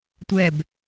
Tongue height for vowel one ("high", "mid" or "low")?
mid